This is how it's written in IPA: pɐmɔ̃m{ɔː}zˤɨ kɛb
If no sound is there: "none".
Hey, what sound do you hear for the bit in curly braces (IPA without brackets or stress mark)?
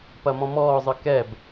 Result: ɔː